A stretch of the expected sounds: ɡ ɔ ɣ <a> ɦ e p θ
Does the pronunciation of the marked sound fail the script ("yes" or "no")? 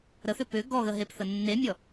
yes